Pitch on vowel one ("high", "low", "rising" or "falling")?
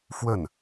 falling